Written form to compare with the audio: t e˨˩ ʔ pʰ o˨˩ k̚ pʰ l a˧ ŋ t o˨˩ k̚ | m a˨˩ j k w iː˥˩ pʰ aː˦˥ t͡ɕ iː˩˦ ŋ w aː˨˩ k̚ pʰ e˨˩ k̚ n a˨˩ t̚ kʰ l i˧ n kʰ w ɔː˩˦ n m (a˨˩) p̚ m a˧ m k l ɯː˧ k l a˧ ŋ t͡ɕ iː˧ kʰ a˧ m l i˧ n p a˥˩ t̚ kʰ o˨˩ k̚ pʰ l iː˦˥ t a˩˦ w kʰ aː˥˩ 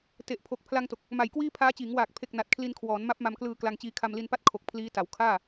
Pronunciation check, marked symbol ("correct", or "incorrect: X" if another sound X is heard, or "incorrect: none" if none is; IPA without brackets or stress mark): incorrect: a˦˥